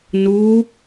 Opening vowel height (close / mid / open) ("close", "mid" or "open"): close